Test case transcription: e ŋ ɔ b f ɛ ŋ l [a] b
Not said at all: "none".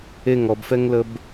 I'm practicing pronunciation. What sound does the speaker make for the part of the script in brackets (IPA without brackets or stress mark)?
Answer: ə